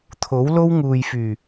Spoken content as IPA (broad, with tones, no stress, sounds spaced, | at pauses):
t̪ʰ o˨˥ w l o˥ w ŋ uː˨ j f yː˨˩